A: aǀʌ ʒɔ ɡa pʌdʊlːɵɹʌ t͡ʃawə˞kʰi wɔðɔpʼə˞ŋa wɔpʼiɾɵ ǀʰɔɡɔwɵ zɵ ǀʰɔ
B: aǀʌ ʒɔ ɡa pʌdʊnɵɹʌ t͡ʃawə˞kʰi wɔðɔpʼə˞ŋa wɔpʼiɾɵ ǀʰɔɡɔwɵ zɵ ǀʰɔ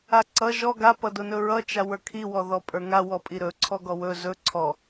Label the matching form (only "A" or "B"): B